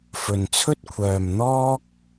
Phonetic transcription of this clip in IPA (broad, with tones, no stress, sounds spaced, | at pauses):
f ɵ˨ n t͡sʰ ɵ˥ t̚ kʷʰ œː˨ m n̪ ɔː˥ k̚